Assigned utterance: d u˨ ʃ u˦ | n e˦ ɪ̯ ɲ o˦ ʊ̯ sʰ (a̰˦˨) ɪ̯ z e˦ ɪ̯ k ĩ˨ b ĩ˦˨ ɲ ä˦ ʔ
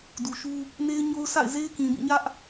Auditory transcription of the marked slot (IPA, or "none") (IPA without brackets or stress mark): a̰˦˨